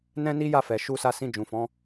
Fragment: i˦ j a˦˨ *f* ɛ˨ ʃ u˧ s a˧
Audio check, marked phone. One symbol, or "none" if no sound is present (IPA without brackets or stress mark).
f